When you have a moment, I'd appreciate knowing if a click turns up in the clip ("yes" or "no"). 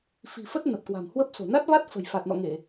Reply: no